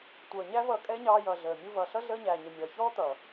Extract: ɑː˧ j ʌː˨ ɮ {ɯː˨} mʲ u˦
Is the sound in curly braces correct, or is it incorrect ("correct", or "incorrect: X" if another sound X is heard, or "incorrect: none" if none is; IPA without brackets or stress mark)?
incorrect: əː˨